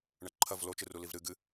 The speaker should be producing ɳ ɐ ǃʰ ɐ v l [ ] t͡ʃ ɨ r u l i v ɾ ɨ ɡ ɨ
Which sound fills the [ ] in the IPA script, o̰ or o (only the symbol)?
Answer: o